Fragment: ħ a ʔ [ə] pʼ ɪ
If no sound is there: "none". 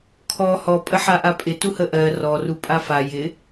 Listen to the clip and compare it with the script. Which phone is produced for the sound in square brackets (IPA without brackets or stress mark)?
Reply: a